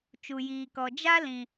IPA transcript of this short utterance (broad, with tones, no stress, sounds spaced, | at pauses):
t͡ʃ u˨ j iː˨ k ɔ˨ d͡ʒ a˦ l ĩ˨